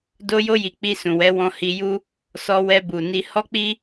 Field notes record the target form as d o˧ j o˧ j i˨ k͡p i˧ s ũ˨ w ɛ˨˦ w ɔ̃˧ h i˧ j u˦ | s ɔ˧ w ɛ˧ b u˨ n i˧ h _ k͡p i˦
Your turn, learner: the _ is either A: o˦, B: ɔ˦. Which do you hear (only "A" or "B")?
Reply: B